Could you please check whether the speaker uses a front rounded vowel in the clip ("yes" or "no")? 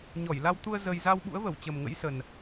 no